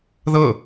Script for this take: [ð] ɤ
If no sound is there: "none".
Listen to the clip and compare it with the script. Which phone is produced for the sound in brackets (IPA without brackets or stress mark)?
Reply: ð